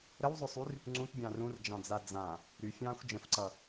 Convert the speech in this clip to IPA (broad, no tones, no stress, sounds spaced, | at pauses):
ɾ ə w zˤ ʏ sˤ y r | ŋ͡ǀ ũ t bʲ ɑ̃ː r ũ r d͡ʒ ɑ̃ d͡z a d͡z ã | ɾ y fʲ ɑ̃ː xʷ d͡ʒ ə̃ f ǀ ʌ